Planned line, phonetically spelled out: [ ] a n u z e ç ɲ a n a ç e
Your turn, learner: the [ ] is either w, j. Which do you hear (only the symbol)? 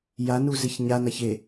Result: j